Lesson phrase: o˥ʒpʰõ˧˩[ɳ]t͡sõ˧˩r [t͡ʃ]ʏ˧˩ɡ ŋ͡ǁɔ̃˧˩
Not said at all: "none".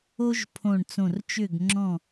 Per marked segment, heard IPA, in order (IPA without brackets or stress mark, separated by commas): ɳ, t͡ʃ